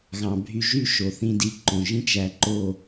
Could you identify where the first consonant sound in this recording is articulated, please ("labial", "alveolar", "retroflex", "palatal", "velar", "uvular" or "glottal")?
velar